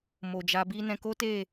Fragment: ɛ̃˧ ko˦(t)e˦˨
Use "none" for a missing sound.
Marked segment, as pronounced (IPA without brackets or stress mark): t